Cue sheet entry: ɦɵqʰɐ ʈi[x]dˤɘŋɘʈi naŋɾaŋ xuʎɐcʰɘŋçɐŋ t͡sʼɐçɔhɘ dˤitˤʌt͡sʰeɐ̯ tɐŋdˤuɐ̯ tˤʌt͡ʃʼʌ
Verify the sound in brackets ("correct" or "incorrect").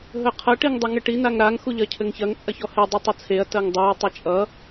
incorrect